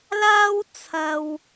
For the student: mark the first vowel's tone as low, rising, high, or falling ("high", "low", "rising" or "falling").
high